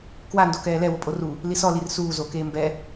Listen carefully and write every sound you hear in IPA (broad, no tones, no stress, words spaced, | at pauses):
kwando kɛːlɛ wʊpʼoru | lisɔlir suː zokeː mbɛ